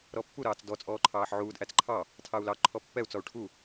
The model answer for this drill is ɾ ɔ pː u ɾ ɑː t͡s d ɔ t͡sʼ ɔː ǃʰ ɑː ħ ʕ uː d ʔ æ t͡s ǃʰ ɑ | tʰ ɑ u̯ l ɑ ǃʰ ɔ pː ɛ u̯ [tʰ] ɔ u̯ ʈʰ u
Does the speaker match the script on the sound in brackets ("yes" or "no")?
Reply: no